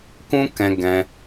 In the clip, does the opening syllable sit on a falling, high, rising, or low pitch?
high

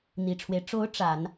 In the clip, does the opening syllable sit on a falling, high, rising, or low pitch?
low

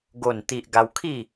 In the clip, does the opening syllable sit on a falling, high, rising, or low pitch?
low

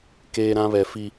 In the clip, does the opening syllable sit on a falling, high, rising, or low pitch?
high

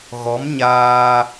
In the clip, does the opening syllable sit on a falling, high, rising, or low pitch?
rising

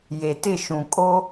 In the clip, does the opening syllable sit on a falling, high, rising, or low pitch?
low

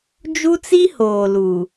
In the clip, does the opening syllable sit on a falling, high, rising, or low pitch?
high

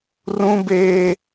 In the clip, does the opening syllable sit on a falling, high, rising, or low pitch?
high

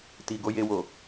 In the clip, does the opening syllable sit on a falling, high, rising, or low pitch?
low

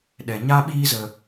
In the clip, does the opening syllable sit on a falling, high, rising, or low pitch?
low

